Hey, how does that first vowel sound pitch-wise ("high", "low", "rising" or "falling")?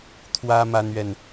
high